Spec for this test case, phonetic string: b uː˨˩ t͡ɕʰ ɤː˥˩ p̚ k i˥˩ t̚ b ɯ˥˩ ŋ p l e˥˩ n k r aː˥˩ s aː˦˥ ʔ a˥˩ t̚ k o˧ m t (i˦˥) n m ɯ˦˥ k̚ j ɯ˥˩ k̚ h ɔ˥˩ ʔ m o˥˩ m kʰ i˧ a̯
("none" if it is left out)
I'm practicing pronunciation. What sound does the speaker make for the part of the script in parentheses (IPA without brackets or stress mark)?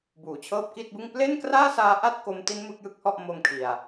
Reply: i˦˥